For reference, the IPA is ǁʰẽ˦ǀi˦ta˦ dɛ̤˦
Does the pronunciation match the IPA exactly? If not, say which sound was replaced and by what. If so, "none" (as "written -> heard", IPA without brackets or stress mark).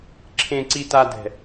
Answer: none